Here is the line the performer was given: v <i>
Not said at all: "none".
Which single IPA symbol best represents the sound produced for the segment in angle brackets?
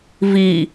i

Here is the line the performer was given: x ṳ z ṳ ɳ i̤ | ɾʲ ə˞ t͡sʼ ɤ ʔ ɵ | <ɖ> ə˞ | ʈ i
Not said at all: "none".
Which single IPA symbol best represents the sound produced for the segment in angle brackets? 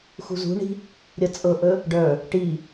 ɖ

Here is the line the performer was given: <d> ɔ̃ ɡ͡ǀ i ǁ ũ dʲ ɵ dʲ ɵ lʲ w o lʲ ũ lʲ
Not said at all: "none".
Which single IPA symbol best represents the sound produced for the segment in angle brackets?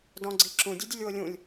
d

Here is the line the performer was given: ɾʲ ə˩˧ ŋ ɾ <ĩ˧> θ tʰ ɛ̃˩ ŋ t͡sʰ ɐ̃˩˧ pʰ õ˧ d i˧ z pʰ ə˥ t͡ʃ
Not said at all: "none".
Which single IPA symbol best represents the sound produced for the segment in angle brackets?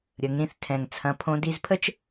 ĩ˧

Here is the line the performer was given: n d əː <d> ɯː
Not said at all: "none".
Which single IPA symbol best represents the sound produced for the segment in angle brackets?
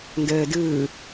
d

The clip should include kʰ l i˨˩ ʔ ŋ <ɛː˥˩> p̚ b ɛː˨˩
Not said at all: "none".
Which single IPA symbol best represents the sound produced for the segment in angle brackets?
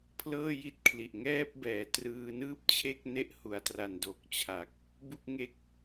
ɛː˥˩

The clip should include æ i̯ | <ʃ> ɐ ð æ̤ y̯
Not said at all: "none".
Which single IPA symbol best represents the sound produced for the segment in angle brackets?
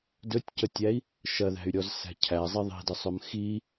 ʃ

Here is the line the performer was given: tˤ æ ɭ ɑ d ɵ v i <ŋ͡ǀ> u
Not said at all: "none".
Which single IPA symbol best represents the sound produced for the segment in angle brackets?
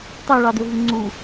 ŋ͡ǀ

